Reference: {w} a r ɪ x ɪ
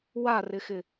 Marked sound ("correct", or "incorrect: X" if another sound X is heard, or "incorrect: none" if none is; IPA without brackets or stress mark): correct